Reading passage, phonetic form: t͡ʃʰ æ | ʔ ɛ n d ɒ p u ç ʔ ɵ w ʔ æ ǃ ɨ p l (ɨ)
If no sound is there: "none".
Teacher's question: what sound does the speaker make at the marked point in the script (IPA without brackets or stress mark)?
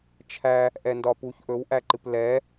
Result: ɛ